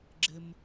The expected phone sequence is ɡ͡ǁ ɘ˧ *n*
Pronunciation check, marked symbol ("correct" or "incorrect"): incorrect